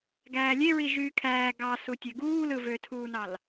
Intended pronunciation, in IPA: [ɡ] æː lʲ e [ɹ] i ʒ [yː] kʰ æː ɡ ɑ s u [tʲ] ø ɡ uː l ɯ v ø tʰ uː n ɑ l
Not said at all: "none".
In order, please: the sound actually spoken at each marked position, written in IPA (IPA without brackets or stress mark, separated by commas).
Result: ɡ, ɹ, yː, tʲ